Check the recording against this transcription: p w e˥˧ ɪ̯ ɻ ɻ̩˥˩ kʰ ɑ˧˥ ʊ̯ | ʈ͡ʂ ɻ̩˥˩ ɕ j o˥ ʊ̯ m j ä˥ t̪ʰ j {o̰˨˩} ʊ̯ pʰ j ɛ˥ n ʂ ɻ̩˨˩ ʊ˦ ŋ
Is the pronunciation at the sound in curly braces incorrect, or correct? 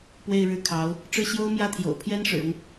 correct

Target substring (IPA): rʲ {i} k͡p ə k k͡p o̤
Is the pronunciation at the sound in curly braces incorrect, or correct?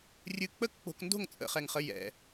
incorrect: ɨ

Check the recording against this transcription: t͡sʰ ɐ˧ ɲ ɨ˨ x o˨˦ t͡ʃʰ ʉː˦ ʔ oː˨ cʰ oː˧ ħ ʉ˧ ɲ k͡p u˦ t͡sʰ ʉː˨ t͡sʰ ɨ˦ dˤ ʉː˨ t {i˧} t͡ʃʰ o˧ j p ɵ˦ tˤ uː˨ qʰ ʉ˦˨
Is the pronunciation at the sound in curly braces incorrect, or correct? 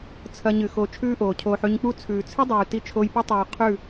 correct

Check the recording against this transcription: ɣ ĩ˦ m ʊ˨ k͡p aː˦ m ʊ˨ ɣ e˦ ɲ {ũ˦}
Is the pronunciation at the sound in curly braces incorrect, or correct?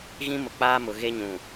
incorrect: ũ˨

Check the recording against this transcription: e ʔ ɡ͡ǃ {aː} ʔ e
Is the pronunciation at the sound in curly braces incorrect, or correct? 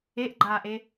correct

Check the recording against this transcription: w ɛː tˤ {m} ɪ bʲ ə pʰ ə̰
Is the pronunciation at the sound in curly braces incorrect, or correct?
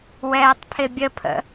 incorrect: pʰ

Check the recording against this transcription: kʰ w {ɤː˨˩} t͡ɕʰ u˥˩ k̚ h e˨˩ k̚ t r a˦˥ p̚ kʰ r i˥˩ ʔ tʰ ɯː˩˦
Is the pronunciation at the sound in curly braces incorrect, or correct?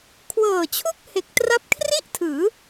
correct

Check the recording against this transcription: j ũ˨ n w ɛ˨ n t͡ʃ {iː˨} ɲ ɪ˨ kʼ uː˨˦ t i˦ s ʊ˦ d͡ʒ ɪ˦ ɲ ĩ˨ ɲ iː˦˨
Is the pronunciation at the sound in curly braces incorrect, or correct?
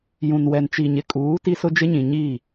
incorrect: i˨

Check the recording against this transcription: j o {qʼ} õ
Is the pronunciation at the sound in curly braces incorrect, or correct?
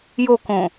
incorrect: k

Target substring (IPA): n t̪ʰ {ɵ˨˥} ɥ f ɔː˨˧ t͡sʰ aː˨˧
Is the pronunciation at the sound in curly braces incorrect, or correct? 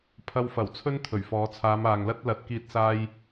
incorrect: ɵ˨˩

